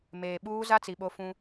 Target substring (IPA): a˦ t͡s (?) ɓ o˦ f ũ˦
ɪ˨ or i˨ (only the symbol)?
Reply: i˨